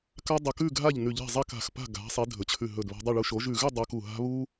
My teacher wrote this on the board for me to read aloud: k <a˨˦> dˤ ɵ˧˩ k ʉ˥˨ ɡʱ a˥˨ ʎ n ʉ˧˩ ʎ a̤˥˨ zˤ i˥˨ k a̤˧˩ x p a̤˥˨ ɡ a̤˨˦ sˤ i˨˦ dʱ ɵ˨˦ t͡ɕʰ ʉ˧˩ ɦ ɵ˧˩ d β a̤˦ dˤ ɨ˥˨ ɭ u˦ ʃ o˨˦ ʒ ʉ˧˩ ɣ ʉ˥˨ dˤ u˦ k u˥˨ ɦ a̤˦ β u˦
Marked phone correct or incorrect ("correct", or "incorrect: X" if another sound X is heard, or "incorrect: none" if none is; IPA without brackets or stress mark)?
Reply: incorrect: a˦